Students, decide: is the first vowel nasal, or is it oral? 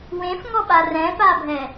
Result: nasal